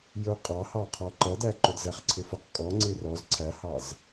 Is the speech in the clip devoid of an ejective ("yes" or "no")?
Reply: no